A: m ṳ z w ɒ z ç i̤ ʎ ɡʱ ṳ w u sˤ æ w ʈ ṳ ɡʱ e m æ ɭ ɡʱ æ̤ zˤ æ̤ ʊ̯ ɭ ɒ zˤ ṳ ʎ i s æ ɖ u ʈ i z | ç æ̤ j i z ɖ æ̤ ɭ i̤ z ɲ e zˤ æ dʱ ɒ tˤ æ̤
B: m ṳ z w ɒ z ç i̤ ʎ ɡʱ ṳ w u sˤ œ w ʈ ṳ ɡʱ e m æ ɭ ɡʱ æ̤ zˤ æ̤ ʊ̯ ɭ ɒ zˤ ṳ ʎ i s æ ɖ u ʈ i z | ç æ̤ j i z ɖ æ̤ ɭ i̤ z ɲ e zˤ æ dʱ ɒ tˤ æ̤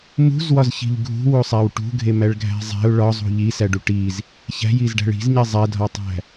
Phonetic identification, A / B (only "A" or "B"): A